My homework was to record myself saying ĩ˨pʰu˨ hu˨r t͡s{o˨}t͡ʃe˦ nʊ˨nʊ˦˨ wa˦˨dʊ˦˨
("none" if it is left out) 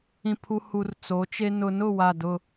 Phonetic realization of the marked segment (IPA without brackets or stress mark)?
o˨˦